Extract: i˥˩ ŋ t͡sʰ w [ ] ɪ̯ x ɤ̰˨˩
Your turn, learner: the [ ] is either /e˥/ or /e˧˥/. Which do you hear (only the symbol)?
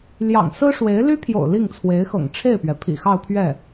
e˧˥